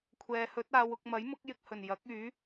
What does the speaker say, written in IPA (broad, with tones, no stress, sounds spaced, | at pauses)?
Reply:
kʷʰ ɛː˨˧ h ɵ˨˥ t̚ aː˨˧ w ʊ˧ k̚ m ɐ˨˥ j m ʊ˨˥ k̚ j ɪ˧ k̚ h ɵ˨˩ n j ɐ˨˥ k̚ yː˨˥